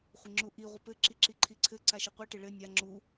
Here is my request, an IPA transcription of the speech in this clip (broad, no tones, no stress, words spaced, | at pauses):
χʷɪŋ͡ǁuʔi ʁʷɘpɘ ǁiǁiǃʰiǀʰɘ ǀaʃɘqʷi ʈɪɭɘ nʲa ŋ͡ǁu